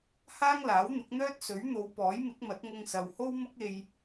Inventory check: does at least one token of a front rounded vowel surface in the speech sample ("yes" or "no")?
yes